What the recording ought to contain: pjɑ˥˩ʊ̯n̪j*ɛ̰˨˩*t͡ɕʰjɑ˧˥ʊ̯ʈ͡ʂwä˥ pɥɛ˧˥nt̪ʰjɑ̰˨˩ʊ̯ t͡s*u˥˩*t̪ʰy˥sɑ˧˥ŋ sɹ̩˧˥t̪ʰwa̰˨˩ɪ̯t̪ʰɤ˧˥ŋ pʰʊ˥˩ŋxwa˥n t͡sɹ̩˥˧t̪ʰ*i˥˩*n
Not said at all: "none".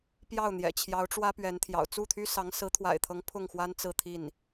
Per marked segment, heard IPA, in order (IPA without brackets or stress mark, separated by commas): ɛ̰˨˩, u˥˩, i˥˩